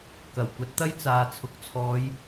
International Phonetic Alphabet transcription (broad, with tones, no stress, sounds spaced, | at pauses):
k ɐ˨˩ w kʷ ɐ˨˥ t̚ t̪ ɐ˥ j t͡s aː˨ t͡sʰ ʊ˨ k̚ t͡sʰ ɔː˨˧ j